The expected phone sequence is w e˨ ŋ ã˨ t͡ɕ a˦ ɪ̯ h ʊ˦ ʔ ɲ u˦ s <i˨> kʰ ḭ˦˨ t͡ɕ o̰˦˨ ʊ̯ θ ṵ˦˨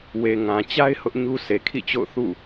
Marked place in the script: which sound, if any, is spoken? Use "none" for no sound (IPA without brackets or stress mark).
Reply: e˨